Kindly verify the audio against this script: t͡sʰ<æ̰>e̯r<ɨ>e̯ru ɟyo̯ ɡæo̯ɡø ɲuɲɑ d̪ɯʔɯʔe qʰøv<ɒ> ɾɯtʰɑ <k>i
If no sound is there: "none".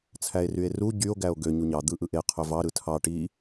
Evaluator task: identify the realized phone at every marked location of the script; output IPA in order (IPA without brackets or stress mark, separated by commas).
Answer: æ, y, ɑ, ʈ